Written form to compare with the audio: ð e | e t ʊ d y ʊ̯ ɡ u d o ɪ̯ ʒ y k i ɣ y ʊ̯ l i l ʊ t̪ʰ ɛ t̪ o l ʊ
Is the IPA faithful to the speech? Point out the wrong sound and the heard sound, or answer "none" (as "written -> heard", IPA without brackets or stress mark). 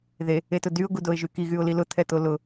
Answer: none